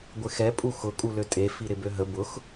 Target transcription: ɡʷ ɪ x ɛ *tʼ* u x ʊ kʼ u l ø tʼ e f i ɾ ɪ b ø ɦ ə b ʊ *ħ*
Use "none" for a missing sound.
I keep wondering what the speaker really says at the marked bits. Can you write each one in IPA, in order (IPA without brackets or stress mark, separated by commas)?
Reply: pʼ, x